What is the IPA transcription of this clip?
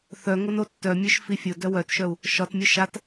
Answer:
θ œ ŋ o n o tː œ mʲ œ ʃ f i fʲ ʊ d œ w œ t ʃ œ u̯ | ʃ ɒ t mʲ ʊ ʃ a t

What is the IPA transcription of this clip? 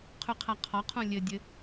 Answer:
qʰ ʉ qʰ a qʰ ɒ qʰ ũ lʲ ɘ dʲ ɘ

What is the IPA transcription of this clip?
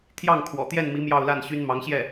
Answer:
t̪ʰ j ɑ˥˩ ŋ kʰ w ɔ̰˨˩ t̪ j ɛ˥˩ n m i˧˥ m j ɑ˥˧ ʊ̯ l a˥˩ n ɕ y˥ n m ɑ˧˥ ŋ ɕ j ɛ˥˩

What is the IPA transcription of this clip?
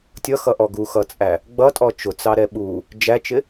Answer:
tʲ ʌ x ʌ ʔ ɔ ɡ u x ʌ t͡sʼ æ | ɡ͡b ʌ tʼ ɔ t͡ʃ ʊ t͡s ɑ ɾ ɛ ɓ u | d͡ʒ æ t͡ʃ ɪ

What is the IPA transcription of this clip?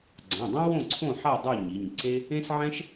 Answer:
ɡ͡ǀ ã˩˧˩ dˤ ã˥ w õ˥˨ ǀʰ õ˥˨ ħ a˥˨ dˤ u˥˨ ɲ i˩˧˩ ɲ ǀ e˥ | ẽ˥ s ʕ ɛ̃˥ ʃ

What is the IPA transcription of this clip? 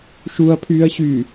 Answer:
ʃ u ɐ̯ pʰ yː ɐ̯ ɕ yː

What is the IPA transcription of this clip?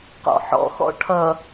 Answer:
q ɔ̰ ħ ɔ̰ x ɔ̰ ʈʰ ʌ

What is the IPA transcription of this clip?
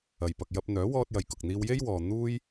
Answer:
ɐ˨ j p ɐ˨ k̚ j ɐ˧ p̚ n̪ œː˨˥ w ɔː˧ t̚ j ɐ˨ j k ʊ˨ k̚ n̪ iː˧ w j e˥ j w ɔː˨ n̪ uː˥ j

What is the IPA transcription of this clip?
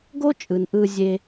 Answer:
ɡ o˦ t͡ʃʼ ɯ˨ n ʔ ɯ˧ zʲ e˦

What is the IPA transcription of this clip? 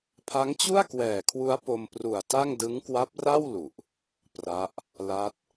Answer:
pʰ a˦˥ ŋ t͡ɕ u˥˩ a̯ k w ɛː˨˩ kʰ w u˦˥ a̯ p o˧ m p r u˨˩ a̯ t a˥˩ ŋ d ɯ˦˥ ŋ k w a˦˥ p̚ r a˥˩ w l u˨˩ ʔ | p r a˦˥ ʔ | l a˦˥ t̚

